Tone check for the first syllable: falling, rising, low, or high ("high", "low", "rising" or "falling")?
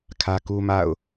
high